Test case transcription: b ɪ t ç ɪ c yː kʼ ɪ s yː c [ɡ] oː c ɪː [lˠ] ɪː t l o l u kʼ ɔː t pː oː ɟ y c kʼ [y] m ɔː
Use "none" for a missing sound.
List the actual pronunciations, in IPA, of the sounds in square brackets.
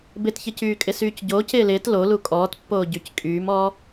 ɟ, l, yː

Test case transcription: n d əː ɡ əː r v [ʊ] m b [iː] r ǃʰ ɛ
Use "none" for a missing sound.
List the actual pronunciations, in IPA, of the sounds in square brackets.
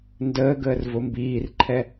ʊ, iː

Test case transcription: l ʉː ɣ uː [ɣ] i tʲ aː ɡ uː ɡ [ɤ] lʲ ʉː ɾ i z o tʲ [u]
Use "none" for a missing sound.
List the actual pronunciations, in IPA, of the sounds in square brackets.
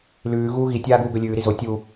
ɣ, ɵ, u

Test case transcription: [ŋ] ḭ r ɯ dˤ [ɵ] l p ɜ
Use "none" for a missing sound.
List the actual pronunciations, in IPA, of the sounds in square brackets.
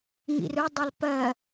ŋ, ɵ

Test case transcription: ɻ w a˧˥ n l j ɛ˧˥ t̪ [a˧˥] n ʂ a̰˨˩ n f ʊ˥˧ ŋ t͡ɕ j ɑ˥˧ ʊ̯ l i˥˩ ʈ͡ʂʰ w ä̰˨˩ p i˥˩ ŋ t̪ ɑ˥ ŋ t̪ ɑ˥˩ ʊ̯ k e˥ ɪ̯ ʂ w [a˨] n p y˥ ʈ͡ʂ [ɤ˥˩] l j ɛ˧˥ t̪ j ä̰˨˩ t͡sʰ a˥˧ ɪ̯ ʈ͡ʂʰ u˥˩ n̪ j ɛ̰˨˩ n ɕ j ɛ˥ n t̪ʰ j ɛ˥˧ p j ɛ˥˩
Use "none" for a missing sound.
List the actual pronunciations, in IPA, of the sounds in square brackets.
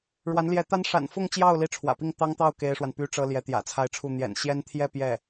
a˥, a˨, ɤ˥

